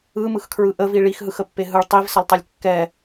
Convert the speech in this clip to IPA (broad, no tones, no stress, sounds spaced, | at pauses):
ɯ m ɯ x kʰ ɹ ɯ ʔ ə v i ɭ i x ɦ ɯ x ə pː e ɦ ɯ ɭ tˤ i v s ə lˠ tˤ ɛ lʲ kː ɛ